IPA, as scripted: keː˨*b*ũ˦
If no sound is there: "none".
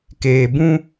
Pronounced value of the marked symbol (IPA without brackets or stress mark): b